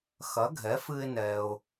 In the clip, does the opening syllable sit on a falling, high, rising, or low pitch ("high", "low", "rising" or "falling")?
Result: rising